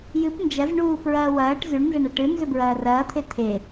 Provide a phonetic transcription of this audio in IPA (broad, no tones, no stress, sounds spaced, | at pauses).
j ɨ p n d͡ʒ ɐ z ɳ uː p ɹ ɐː w ɐː ʈ z ʉ ɳ n z ɐ ɳ ɐ ʈ ɨ n z ɵ b ɹ ɐː r ɐː t̪ʰ e t̪ʰ e